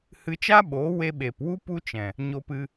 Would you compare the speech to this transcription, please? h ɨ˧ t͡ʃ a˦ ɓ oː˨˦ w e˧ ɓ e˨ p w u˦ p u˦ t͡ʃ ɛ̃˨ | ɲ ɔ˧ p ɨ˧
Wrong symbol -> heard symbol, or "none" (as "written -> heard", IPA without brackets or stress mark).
ɔ˧ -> o˧